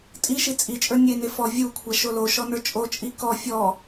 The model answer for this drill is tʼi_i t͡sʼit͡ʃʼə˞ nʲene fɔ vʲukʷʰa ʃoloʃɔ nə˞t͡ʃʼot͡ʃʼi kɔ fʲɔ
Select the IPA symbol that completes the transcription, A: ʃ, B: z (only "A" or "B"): A